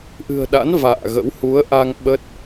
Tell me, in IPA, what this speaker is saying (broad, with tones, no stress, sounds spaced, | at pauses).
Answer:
ʔ ɨ̤˨˩ ə̯ ɗ a̰˧˥ n v a̰ː˧˨ ɣ ə̰˧˥ w h u˨˦ ə̯ ʔ a˧ ŋ ɓ ə˦˥ t̚